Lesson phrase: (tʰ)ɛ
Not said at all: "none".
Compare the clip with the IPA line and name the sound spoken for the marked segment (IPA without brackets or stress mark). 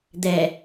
d̪